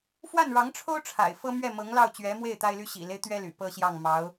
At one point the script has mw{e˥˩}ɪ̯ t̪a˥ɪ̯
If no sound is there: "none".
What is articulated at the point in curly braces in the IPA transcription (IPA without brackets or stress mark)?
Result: e˥˩